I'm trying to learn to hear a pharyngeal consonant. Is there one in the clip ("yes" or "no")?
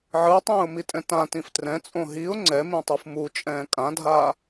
yes